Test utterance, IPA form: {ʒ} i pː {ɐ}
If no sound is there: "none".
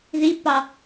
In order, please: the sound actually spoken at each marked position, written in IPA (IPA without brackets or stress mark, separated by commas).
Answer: ð, ɑ